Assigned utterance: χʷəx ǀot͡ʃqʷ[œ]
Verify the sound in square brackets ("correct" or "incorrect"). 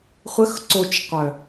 correct